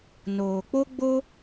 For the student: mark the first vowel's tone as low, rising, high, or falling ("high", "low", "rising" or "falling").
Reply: low